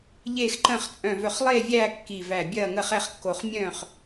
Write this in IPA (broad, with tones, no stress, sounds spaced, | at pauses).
ʎ eː˥˨ x ǃ ə̃ː˥˨ χ t͡sʼ œ̃˧˩ v œ˧˩ χ lˠ eː˥˨ vʲ æː˥˨ kː i˧˩ v æ˧˩ bʲ ɐː˥˨ ŋ ə˥˨ χ ɛ˥˨ χ kː o˧˩ χ mʲ œ̃ː˥˨ χ